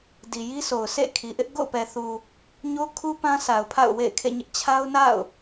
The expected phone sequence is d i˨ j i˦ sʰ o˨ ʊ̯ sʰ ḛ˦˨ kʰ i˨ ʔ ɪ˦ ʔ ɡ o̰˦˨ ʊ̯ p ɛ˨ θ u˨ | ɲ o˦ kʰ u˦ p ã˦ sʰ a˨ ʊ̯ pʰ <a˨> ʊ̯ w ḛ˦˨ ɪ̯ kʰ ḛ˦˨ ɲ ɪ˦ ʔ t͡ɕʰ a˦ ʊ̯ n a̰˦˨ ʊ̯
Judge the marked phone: incorrect: a̰˦˨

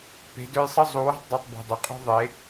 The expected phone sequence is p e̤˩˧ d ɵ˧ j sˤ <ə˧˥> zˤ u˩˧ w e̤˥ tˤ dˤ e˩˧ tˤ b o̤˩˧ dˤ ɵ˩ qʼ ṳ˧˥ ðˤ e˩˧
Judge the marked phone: correct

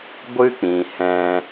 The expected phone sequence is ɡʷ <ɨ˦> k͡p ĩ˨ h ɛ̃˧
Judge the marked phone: correct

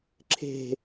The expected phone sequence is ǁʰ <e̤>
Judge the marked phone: correct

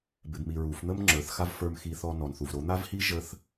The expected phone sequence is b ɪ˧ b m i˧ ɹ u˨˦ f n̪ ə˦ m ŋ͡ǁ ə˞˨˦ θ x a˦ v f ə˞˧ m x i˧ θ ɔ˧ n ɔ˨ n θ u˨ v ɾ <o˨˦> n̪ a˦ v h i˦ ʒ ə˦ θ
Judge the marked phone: correct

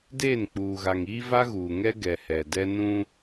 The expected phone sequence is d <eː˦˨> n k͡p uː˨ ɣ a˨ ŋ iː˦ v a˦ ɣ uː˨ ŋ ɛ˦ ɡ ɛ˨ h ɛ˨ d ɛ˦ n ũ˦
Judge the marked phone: correct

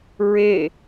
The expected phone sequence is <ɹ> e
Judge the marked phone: correct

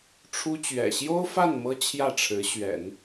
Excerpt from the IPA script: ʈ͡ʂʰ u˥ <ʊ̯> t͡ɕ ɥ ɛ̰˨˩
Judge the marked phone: incorrect: none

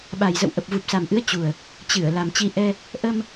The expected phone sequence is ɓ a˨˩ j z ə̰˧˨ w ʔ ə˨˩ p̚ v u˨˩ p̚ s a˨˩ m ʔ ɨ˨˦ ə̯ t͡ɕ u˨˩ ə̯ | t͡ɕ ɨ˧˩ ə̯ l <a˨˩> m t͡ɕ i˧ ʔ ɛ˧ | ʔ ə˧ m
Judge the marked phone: correct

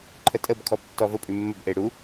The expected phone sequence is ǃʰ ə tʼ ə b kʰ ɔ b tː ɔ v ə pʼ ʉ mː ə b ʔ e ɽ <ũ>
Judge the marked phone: incorrect: u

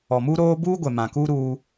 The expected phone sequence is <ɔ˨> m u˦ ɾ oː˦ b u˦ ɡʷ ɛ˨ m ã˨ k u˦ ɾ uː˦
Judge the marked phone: correct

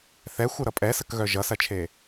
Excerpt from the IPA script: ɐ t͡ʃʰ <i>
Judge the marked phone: incorrect: e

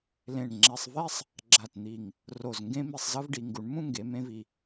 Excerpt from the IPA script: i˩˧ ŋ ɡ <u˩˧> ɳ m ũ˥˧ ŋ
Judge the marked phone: correct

